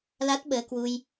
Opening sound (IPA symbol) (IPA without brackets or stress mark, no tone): l